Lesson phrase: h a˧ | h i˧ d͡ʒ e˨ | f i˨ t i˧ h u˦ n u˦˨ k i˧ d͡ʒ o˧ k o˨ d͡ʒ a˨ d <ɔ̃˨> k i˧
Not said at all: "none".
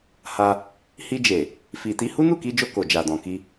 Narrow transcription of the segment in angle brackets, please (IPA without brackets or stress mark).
ɔ̃˨